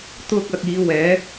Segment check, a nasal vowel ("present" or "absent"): absent